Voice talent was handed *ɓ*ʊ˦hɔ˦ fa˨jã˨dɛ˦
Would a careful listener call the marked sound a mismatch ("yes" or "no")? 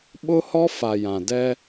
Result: no